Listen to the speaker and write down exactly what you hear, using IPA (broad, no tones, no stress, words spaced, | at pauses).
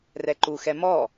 rɛǃuxɛ mɔ